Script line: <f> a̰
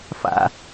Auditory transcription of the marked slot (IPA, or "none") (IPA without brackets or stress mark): f